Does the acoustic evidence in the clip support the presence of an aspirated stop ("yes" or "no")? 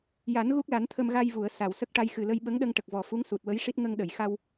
yes